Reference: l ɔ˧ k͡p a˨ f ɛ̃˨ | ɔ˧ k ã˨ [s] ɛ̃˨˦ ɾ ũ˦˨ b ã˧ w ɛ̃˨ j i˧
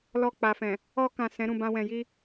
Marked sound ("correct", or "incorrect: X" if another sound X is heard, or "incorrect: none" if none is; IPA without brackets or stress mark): correct